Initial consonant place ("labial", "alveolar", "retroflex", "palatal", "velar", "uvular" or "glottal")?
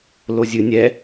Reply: alveolar